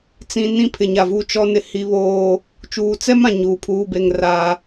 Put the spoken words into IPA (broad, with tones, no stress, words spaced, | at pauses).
t͡sĩ˨ nĩ˦pʰɪ˨ɲa˨vu˦˨ t͡ʃɔ˦nɪ˦ hi˦βoː˦ | t͡ʃuː˨t͡sɛ˦mã˨ ɲuː˨pʰuː˦be˦˨ŋ raː˦